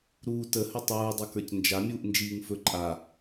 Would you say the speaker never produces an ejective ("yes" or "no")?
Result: no